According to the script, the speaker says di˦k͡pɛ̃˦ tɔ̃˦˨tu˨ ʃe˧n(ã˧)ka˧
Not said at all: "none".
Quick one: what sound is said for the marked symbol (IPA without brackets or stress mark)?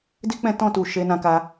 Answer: ã˧